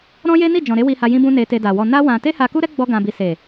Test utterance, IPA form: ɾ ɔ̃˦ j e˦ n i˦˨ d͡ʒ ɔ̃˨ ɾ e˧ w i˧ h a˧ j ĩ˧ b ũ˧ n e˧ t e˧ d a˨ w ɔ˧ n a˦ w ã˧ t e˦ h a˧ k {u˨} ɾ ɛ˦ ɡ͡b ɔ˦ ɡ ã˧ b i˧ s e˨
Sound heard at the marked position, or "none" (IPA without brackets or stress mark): u˦